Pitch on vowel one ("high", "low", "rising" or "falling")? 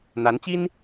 rising